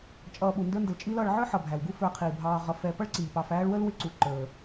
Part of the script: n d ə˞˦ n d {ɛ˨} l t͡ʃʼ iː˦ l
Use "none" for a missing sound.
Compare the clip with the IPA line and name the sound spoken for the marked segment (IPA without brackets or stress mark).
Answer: ə˨